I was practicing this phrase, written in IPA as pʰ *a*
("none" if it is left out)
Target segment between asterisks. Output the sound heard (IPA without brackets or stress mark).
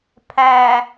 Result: æ